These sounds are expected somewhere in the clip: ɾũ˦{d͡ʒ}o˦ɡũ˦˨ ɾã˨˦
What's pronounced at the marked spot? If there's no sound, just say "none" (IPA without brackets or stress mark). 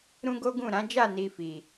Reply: ɡ